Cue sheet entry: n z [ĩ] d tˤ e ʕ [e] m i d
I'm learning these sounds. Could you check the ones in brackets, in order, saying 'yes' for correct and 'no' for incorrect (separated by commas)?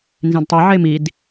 yes, yes